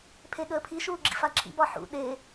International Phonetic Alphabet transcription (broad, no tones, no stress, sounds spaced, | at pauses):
pʰ e ɠ əː pʰ i ʃ uː ɡ͡ǁ ḭ f a ǁʰ ḭ b ɒ ħ ṵ ɗ e